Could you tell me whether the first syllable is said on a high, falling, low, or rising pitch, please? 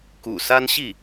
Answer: low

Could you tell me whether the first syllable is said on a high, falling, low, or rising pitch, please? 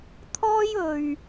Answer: high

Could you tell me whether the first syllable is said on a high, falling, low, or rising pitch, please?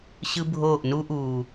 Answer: high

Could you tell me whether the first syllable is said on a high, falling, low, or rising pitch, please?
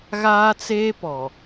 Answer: high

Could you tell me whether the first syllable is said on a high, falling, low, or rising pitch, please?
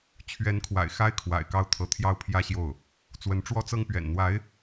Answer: rising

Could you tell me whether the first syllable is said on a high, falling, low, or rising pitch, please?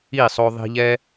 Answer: falling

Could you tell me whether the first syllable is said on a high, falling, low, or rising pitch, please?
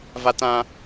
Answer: high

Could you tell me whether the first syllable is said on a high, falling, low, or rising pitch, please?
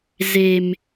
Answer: low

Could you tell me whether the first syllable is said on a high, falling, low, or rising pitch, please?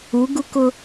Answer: rising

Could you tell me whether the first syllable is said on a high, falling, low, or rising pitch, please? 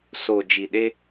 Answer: low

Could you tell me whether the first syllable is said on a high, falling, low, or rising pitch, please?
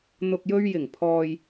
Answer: low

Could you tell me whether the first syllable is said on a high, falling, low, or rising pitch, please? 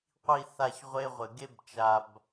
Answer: falling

